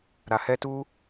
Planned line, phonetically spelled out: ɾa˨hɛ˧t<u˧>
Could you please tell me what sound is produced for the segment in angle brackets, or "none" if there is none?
u˧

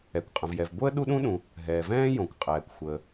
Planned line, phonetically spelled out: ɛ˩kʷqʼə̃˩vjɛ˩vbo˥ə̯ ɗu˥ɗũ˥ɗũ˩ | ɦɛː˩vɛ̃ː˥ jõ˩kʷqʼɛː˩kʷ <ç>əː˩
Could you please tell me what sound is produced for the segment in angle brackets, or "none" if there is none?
xʷ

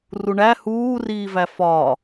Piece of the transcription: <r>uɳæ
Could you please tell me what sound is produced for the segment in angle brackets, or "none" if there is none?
r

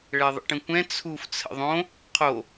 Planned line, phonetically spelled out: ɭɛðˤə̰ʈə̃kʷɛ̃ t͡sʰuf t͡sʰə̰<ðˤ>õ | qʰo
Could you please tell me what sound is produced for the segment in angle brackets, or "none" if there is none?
ðˤ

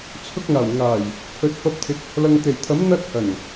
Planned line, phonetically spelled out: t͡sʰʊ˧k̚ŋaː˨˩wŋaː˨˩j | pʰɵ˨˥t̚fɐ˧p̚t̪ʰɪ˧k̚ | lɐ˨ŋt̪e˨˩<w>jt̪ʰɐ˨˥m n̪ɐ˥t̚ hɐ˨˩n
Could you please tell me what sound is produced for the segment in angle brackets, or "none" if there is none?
none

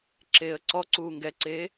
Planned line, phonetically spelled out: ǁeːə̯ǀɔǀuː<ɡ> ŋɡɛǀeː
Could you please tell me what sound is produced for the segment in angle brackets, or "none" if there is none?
none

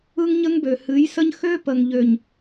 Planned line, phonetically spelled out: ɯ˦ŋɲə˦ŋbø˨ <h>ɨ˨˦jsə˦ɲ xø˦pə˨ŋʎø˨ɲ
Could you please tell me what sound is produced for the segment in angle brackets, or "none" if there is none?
h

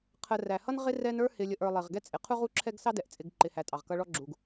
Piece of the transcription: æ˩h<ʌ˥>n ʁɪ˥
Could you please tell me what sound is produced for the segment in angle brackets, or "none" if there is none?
ʌ˥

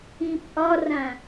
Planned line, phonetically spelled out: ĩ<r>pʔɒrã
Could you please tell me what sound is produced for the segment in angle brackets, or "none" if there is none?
none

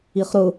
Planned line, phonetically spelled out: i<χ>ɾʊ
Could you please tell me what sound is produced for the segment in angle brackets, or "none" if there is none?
χ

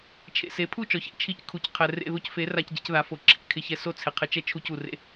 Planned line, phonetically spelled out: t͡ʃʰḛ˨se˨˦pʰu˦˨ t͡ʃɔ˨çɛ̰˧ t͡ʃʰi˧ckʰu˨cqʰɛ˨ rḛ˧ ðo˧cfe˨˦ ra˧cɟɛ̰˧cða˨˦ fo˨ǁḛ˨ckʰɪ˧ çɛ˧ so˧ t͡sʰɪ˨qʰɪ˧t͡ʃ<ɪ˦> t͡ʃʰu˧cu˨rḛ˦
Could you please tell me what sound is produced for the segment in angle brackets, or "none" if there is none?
ɛ˦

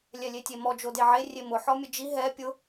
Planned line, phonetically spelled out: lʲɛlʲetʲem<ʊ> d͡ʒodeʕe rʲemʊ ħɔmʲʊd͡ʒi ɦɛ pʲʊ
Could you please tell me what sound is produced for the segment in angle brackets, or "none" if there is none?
ɔ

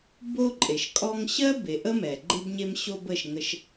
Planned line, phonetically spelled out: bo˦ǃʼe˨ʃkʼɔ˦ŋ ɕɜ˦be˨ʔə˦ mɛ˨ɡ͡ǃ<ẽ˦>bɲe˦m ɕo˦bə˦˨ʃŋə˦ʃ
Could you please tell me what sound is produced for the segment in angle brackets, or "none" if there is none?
e˦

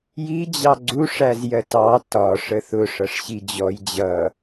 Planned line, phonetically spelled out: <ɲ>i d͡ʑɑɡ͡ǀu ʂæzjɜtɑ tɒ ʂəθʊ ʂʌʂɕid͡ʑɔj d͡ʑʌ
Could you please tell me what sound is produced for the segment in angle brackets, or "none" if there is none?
j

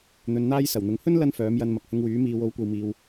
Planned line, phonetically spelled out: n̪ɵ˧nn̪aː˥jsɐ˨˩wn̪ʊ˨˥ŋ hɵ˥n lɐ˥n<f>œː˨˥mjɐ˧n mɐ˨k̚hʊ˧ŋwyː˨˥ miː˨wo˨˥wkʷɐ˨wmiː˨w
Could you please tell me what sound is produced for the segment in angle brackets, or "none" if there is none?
f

